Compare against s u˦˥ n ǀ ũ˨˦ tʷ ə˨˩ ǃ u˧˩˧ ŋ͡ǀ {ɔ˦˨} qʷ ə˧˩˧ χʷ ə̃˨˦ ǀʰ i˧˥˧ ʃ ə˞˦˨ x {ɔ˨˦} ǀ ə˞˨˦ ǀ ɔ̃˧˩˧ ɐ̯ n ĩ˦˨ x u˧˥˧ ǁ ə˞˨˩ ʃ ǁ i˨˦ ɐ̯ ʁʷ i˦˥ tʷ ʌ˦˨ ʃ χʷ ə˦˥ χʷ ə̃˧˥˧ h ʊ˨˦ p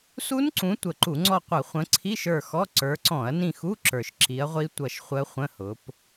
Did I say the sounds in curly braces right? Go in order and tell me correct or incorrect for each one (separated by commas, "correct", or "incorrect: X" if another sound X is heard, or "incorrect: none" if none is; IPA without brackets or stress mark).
correct, incorrect: ɔ˧˥˧